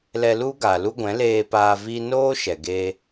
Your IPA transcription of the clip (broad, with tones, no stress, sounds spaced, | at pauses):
l ɛ˧ l u˦ ɡ a˨ l u˦ ɡʷ ɛ̃˨˦ l eː˧ p aː˧ v i˦ n oː˦ ʃ ɛ˨ ɡ e˧